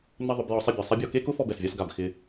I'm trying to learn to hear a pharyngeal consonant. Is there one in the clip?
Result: no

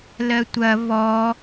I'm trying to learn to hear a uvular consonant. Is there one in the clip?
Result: no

